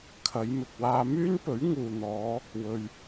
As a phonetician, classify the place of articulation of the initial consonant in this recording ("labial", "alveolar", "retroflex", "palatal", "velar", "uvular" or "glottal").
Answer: velar